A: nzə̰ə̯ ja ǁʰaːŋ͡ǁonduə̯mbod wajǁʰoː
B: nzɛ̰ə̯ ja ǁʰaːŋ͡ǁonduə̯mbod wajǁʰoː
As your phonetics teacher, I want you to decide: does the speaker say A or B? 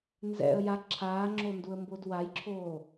B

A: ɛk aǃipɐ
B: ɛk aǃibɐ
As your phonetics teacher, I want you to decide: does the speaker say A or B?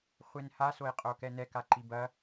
B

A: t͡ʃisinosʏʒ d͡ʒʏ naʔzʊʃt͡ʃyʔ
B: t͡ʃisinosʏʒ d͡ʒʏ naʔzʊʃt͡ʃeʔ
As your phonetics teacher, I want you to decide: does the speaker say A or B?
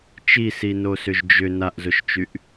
A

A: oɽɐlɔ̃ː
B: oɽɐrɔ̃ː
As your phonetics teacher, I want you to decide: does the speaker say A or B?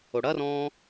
B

